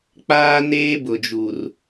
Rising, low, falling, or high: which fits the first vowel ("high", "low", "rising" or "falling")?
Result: high